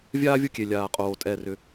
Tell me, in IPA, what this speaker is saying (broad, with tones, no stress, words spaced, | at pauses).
vʲaː˥ vʲo˥kʲe˨˩ lʲaː˨˩qʼoː˨˩ tʼɛ˨˩rʏ˨˩